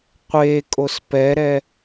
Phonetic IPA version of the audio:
qʷ e kʼ o s p ɛ ɾ ɛ

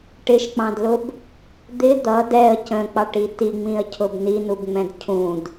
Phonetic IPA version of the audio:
ʈ ɪ ʃ k͡p ɑ̃ d l ʊ b | d̪ ɪ d̪ ʌ d ɛ ə̯ c ə̃ k͡p ɑ ʈ i t i ŋ͡m ĩ ə̯ cʰ ʊ b n i n u b ŋ͡m ɛ̃ d cʰ ũ d

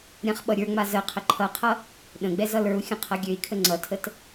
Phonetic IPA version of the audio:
ɾʲ ã χ ɓ ʌ ɾʲ ə˞ ŋ͡m a z ə qʰ ə ǃʰ ʌ qʰ ʌ | ɗ ə̃ ɡ͡b ɛ z ʌ l ə˞ u̯ xʲ ə̃ qʰ ʌ ɡʲ ø i̯ kʰ ə ŋ͡ǀ ʌ tʰ ə t

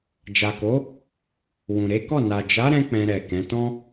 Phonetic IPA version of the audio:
d͡ʒ a˨ k o˨˦ | w ũ˨ ɾ e˨˦ k ɔ˦˨ n a˨ d͡ʒ a˨˦ ɾ ɛ̃˧ k͡p ɛ̃˧ ɾ ɛ˨ k ɛ̃˨˦ t ɔ̃˦

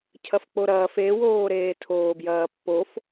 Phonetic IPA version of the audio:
cʰ ɐ f k͡p o ɾ ɐː f e w oː ɾ eː tʰ oː b j ɐː pː o f

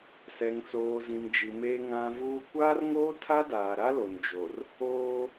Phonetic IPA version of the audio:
s ɛ˨ ŋ t͡s oː˨ z ĩ˨ m d͡ʒ i˨ m e˦ ŋ ã˦ v uː˦ kʷ aː˦ r ŋ oː˦ tʰ a˦ d aː˨ ɾ a˦ l o˨ n d͡ʒ o˨ r | oː˦

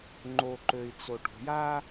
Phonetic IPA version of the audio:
ŋ͡ǃ o ǃ ø i̯ t͡s o ʈ ṳ j a

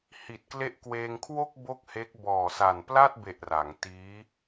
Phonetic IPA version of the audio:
h i˨˩ t̚ k l e˦˥ ʔ k w eː˧ ŋ kʰ w o˥˩ k̚ b o˥˩ k̚ h e˦˥ k̚ b ɔː˨˩ s a˨˩ n p l a˥˩ t̚ b e˨˩ ʔ r a˩˦ ŋ t iː˦˥

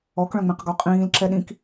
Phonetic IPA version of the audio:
ɔ k ɭ œ̃ ŋ͡m ẽ q ɡ ɔ qʼ ĩː l ǁ ɛ ɗ ĩ k

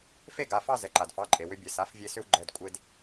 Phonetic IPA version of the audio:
f e˥˧ ɡ a˩˧˩ f ɑ˥˧ z ɛ˩ ǃ a˩ d f ɑ˩˧˩ ǃʼ e˩ w ʏ˧ bʲ ɛ˩ s a˩˥ f vʲ e˧ s ʏ˧ w ɡ͡ǃ ɛ˩˧˩ d kʷʼ e˧ d

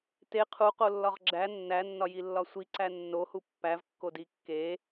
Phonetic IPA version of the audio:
t e qʰ u q o lː ɒ ʁ ɡ͡ǁ æ nː æ nː ɒ j i lː ɒ sʷ i ǀ æ nː o h u pː æ v kː o d i kː e

